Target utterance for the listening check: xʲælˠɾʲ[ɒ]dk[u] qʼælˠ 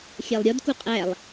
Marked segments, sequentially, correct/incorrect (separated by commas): correct, correct